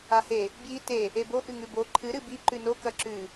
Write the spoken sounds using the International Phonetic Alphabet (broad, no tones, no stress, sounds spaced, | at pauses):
a h e | b j i t e | e b o ʔ ɨ ŋ ʉ b o ǃʰ ɨ ɾ ɨ b i ǃ ʉ n o k ɐ ǁ ʉ